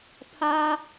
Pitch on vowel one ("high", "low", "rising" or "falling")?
high